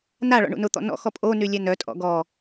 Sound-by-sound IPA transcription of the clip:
n a ɭ ɔ̰ ɳ ṵ n ʊ t̪ ɔ̰ n ɔ̰ x ɔ pʼ o n y lʲ ɛ n œ tʼ ɔ̰ ɡ ɔ

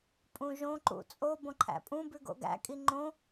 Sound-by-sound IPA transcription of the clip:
pʼ ũ ʒ õ ǃ ṵ t͡sʼ o b õ ǃʰ æ̰ pʼ ũ b ʉ ɡ o̰ ɡ æ̰ kʼ i ŋ͡ǃ õ

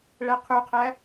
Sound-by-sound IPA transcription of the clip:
ɭ æ qʰ u qʰ æ

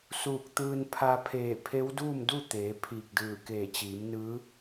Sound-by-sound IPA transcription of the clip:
s uː˧˩ k̚ t̪ ɯː˧ n pʰ a˧ pʰ eː˧˩ pʰ e˧˥ w d uː˥˨ m d u˥˨ t̪ eː˩˧ pʰ iː˧˩ k̚ d ɯː˧˩ k eː˧˩ t͡ɕ iː˩˧ m n ɯː˧˥

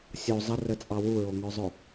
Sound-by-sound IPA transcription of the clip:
sʲ o zˤ ə r ə t͡sʼ ɑ w u ɹ o ŋ œ zˤ ʊ

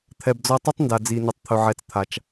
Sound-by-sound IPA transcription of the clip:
t̪ʰ ɛ˩ b d͡z ɔ˧ tˤ ɵ˥ tˤ n d a˩ d͡z i˩ n ə˩ tˤ t̪ʰ ɵ˩ ʕ ɛ˩ t͡s t̪ʰ a˩ t͡ʃ

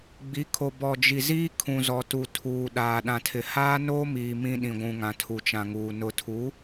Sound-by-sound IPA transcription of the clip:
ɡ͡b i˨˦ kʰ o˨ b ɔ˨ d͡ʒ i˨ z iː˦ kʰ ũ˨ z ɔ˨ t u˨ tʰ uː˨ ɗ aː˨ ɗ ã˨ tʰ ɪ˨ h aː˦ n oː˦ m iː˨ m ĩ˦ ɗ ĩ˨ ɡʷ ũ˨ ŋ ã˨ tʰ u˨ t͡ʃ ã˨ ŋ uː˨ n ʊ˨ tʰ u˨˦

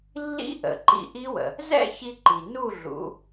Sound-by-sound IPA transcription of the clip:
lː ḭ˦˥ ʔ ə̰˩˧ ǃ ḭ˧ ʔ i˦˥ w ə̰˩ | z ɛ̰˥˨ ç i˧ ǃ i˩ n u˥˨ ɮ ṵ˩˧

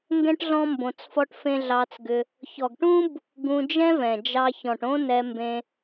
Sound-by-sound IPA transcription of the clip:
ŋ ɡ ɛ̃˦ ʈ ɮ ɔ̃˦ m b õ˧ t͡s f ɔ˦ ʈ f ẽ˦ ɮ ɑ˧ t͡s ɡ ʏ˧ | ç ɔ˨ ɡ ʈ ũ˦ b | ɡ ũ˧ d͡ʒ ɛ̃˦ v ɛ̃˨ d͡ʒ ɑ˧ ç ɔ̃˨ ʈ õ˦ n ɛ˧ m b ẽ˧

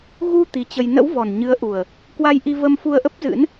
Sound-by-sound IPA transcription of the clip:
ɣ u˧ t̪ i˨˦ t͡ɕ ə˧ j n ə̰˧˥ w v ɔ˨˩ n ɲ ɨ˨˦ ə̯ ʔ u˨˩ ə̯ | k w a˧ j ʔ i˧ v ə˧ m f u˧ ə̯ ʔ ə˦˥ p̚ z ɨ̰˧˥ n

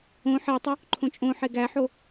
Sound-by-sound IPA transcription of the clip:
õ ħ e tˤ u | ǃʰ õ t͡ʃʼ õ ħ e ɡ æ ħ o

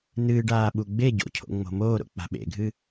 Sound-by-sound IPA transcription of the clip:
n ɨː ɖ aː ɓ u ɡ͡b e ɟ o̰ cʰ o̰ ŋ͡m o̤ m oː ɾ o̰ k͡p a̤ ɓ ḛ ɡʱ ɨ

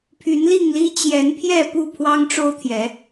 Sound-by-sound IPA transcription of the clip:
pʰ y˨˦ n l i˥˨ ŋ l i˦ t͡ɕ j ɛ˨˦ n pʰ j ɛ˥˨ p u˥˨ pʰ w ɑ˦ ŋ ʈ͡ʂ o˦ ʊ̯ t̪ʰ j ɛ˨˦

